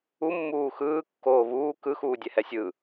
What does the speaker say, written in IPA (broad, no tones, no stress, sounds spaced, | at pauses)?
u mː uː x ɯː kː oː β uː k ɯ x uː dʲ ɛ h ɛ sʲ ɯ